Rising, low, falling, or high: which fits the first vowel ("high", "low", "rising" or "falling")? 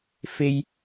high